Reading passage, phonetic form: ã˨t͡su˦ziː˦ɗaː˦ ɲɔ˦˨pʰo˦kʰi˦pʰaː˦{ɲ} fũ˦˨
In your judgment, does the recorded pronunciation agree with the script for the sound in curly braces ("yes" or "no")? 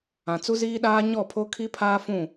no